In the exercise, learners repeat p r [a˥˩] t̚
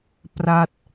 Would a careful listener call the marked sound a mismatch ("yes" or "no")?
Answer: no